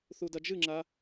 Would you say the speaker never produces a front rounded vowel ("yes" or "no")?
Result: yes